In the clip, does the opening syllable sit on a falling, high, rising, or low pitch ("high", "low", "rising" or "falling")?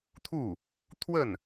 falling